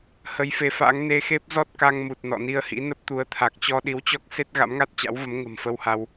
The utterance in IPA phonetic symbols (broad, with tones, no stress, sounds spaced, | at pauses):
h ə˨˦ j f e˨˦ f a̰ː˧˥ ŋ n e˧ x e˦˥ p̚ z ɔ˦˥ t̚ k a˧ ŋ m u˨˩ t̚ n ɔ̰˧˨ n i˧ ə̯ h ḭ˧˥ n ə˦˥ p̚ t̪ u˨˦ ə̯ t̪ʰ a˨˩ k̚ t͡ɕ ɔ˧ ɗ i˨˦ w t͡ɕ ɔ˦˥ k̚ s e˦˥ t̚ ɣ a̰˧˥ m ŋ a˦˥ t̚ t͡ɕ a̰˧˥ w v ə˨˦ m ŋ ə̤˨˩ m f ə˧ w h a˧ w